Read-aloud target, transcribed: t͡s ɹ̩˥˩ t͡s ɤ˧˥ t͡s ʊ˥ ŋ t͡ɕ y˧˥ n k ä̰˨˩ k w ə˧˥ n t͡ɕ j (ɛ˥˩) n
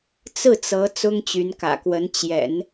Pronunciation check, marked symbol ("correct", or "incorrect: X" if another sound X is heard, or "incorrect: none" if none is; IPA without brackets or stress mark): incorrect: ɛ̰˨˩˦